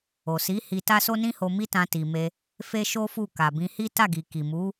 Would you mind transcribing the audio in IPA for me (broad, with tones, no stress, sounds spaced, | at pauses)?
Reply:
o˨ s i˨˦ h i˧ t a˦ s o˦ n ĩ˦ h o˧ m i˦ t ã˧ t i˨ m e˧ | f e˦ ʃ o˦ f u˦˨ k a˨ b ĩ˧ h i˦ t a˦˨ ɡ i˨ k i˨ m u˨˦